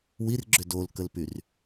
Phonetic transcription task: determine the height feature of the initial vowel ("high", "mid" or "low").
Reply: high